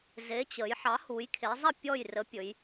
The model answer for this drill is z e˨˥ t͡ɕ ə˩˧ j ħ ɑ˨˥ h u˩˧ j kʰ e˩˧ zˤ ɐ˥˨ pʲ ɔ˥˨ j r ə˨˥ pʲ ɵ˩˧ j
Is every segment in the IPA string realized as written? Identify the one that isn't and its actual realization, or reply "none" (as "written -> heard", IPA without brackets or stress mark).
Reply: none